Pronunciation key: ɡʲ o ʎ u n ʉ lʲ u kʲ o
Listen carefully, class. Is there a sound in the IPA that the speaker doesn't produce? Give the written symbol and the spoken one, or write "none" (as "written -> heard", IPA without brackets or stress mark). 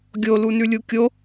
ʎ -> l